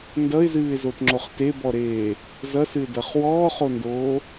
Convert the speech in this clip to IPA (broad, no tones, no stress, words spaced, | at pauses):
ndʌɪ̯zɨːɪ̯zotŋ͡ǁoχ tebɔɾeː | zʌsɨɪ̯dʌχ wɔːχondoː